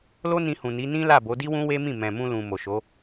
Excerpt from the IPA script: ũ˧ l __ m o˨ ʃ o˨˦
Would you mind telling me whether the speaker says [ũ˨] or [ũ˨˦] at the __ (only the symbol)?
ũ˨